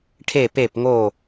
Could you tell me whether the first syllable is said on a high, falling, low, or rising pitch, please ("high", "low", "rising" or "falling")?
falling